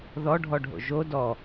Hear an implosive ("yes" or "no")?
no